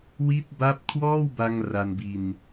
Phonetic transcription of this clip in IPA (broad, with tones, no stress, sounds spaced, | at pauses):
w i˦˥ t̚ b a˦˥ p̚ kʰ w ɔː˥˩ w b a˧ ŋ r a˧ n b i˧ n